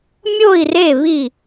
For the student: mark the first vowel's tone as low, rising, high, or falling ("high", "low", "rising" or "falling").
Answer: falling